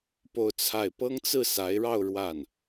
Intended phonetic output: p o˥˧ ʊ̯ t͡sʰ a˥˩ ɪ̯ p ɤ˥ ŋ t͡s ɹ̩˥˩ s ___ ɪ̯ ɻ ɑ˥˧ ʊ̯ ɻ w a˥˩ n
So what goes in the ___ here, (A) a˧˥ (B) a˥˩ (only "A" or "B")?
A